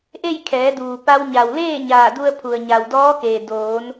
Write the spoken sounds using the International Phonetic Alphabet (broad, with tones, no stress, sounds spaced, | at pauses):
ʔ e˥˨ j kʰ ɛː˩˧ d uː˩ p a˧ w ɲ a˩ w l eː˥˨ ɲ aː˧˩ d u˧ ə̯ pʰ u˩ ə̯ ɲ a˩ w d ɔː˧˥ k eː˩ d oː˩˧ n